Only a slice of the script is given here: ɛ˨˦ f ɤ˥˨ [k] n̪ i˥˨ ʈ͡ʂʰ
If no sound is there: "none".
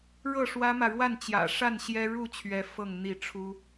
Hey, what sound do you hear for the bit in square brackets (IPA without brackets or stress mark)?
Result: ŋ